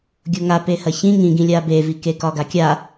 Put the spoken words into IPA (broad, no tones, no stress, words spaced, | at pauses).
ɡʲoŋa pehɐçĩ ŋĩɡĩ lʲabevike kɒɡakʲa